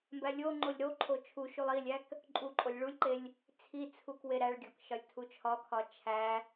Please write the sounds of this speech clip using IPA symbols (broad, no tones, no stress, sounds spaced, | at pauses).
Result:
m b æ lʲ o ŋ͡ǃ o lʲ ɾ o ǃʰ o t͡ʃʰ u ʃ u lˠ i lʲ æ k | ǃʼ u ǃʼ o lʲ ɭ u lʲ ǃ e lʲ | t͡sʰ i t͡sʰ u k w e ɾ æ ɭ ɡʲ ɒ k ʃ ɒ lʲ tʰ u t͡ʃʰ ɒ kʰ ɒ t͡ʃʰ æ